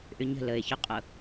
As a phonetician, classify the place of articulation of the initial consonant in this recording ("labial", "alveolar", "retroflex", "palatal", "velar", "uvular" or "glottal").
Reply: glottal